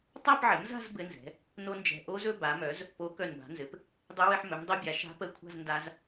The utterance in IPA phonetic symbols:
tˤa˥˧pʕɘ˩˥mza̤˥˧z bɘ˦˥nzɛ̤˩˥ | no˦˥nd͡ʒɛ̤˧˩ ʔo˦˥zɵ˥˧ ba˩˥mœ˩˥z | po˩˥ kœ˧˩nba̤˩˥nzɘ˩˥p | dˤɛ˦˥wɘ˥˧ħ mɵ˩˥mdˤo˦˥bʲa˩˥ ʃa̤˦˥pə˦˥kʷʰa̤˥˧z nda˦˥z

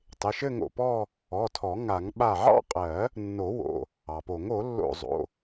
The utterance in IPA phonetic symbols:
tˤɪ˩˧˩ʃɘ˥˧ŋo̰˧˩pɔ˥˧ | ɔ˩˧˩tʰɔ˨˩˦ ŋa˨˩˦ŋ ɓa˧˩ʕɑ̰˥˧qʼɜ˨˩˦ | nːo˨˩˦wo̰˩˧˩ | ɑ˩po˨˩˦ŋ o˨˩˦lːo̰˧˩ zˤo̰˩˧˩

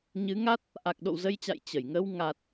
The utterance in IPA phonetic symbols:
ɲɨ˨˦ŋa˦˥t̚ | ʔa˨˩k̚ɗo̰˧˨wzə˧jt͡ɕa̰˧˨j t͡ɕə˧˩j ŋə˧w ŋa˨˩t̚

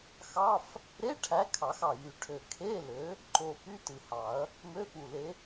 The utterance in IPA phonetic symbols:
xɑ˧˥˧f | ɾe˧˥˧ ʈʰæ˨˥ kʰɑ˨˩˦xɑ˨˩ jy˨˩ʈʰø˨˩ kʰe˧˥˧lø˨˥ | ǃo˨˩ py˧˥˧tɯ˨˩hɑ˨˩˦ɐ̯ | mø˧˥˧fu˨˩le˨˥

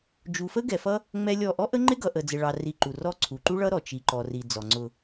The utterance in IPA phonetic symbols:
d͡ʒu˨fə˦ɡɛ˨fʌ˦ | ŋ͡mɛ˦lʲɔ˦˨ ʔɔ˦ʔə˦ŋ͡ǃɪ˦ ɡʌ˨ʔə˨ d͡zɪ˨ɭɑ˨ ri˧ǃu˨rɔ˦ ǀʰu˨ǃu˦ɭʌ˦ɾɔ˨ t͡ʃi˨ǃɔ˨ri˨ d͡zɔ˨ŋ͡ǀʊ˧

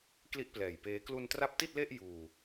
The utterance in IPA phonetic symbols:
kli˥˩ʔplɛː˨˩jpeː˦˥ klu˧ntra˦˥p̚ti˥˩t̚le˥˩ʔ juː˧

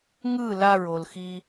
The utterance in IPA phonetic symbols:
ŋɯ laɹolxi

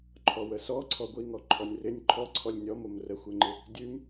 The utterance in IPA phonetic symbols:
ǃʰɔwəsɔ ǀʰɔɡʷiŋɔ ǃʰɔnʲrɪnʲ ǃʰɔ ǀʰɔlʲnʲɔm omrəxʷeŋ͡ǃɪ | dʲʉm

